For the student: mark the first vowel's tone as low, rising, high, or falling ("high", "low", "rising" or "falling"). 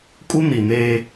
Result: high